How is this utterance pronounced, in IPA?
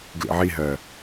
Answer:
ɡ l ḭ ʕ i ɦ ɜ

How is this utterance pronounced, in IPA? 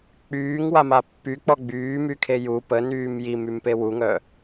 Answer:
k͡p yː ŋ w a m a pː y k͡p ɔ ɡ͡b yː m y kʰ e j u p ə n yː m j i m y m p e w u ŋ œ

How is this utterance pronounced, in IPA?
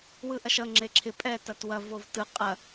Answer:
w ɯ ʔ ɐ ʃ ʌ ŋ͡ǁ e ǁʰ ɪ pʼ ɛ t ɐ t w ɐ v o v t ɯ qʼ ɐ

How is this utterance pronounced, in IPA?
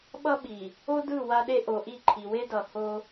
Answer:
ɓ ʌ˦ ɓ i˨ | o˦ d ɯ˦˨ w a˦ ɗ e˦ ʔ o˨ ʔ i˦˨ ǃʰ i˨ w e˦ d ʌ˨ h o˦

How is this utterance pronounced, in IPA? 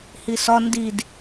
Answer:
h i s ɒ n d i d

